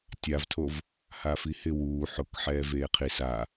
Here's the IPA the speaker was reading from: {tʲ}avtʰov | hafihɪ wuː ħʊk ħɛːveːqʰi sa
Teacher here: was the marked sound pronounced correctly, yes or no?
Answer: yes